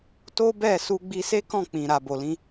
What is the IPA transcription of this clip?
to˦bɛ˦˨ su˧ɡ͡bi˧se˦kɔ̃˦˨ k͡pĩ˨ ɾa˨bo˨lĩ˧

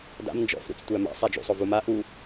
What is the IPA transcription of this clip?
da̰m nd͡ʒɔ̰fɾṵt͡s tʷæma̰ sˤad͡ʒṵsˤo vuma ʔu

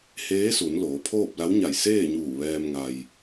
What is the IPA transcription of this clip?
heː˧˥su˩˧n loː˩˧pʰoː˥˨p̚la˧˥w ɲa˧˩jseː˥˨ɲuː˧˩ ʋɛː˧mŋa˩j

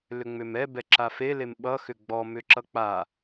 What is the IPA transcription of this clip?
lʏŋ͡mʏmɛ bɛǁafe lemɓʌ xʏɡ͡bɔ mʏǁʌk͡pa

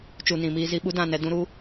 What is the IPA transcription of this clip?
t͡ʃu˨nĩ˨miː˧zi˧ ɓu˦dã˦˨nɛ˧ dũ˦ɾu˦

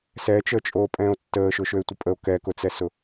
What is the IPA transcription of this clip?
sɛt͡ʃəːt͡ʃʼoː pʼɛ̃ːo̯tːəːʃʊʃøe̯ tʷɪpʼəo̯ kɛkʊt͡sɛsʊ

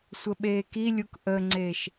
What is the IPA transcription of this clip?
sʷəɓeːkilʲuk ʔəŋ͡ǀeːʃ

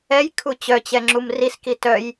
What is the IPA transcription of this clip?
ɛjkʰu t͡ɕœt͡ɕɛŋ͡ǁum riski tœj

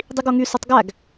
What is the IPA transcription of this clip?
dˤiɡoŋy sotˤɡæɡ

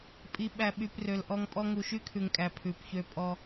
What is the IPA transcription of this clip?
pʼi˨ ɓæ˨ɓy˨p rø˨lʔɔ˦ŋpʼɔ˦ ŋu˨ʃy˦kʰʉ˨ŋkʼæ˨ pʰʉ˨pçø˦pʼɔ˦

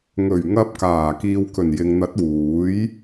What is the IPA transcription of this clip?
ŋɵ˨˩ɥŋɐ˧p̚kaː˨˩ kiː˨wkɵ˨˩njɪ˨ŋn̪ɐ˨˥t̚ wuː˨˥j

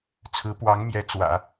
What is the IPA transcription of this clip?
t͡sʰɹ̩˧˥pwɑ˧˥ŋmjɛ˧˥ t͡swä̰˨˩˦

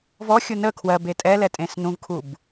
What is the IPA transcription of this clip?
vɔxʲu nə kʰwɜbe tʼɛlɛtʼẽs nũvkʰub

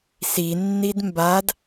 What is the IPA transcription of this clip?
sinːid mbad

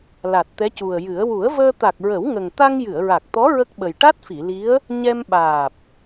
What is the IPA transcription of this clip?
la˨˩t̚t̪ɛ˧˥cu˨˩ə̯jɨ˨˩˦ə̯ wu˨˩˦ə̯vəː˧ t̪a˨˩k̚ɹə˨˩˦wŋə˨˩ŋt̪a˧ŋ jɨ˨˩˨ə̯ɹa˨˩k̚t̪ɔ˧˥ ɹə˦˥k̚ɓə˨˩j ʈa˦˥t̚fi˨˩˨li˧˥ə̯ | ɲɛ˧mɓaː˨˩p̚

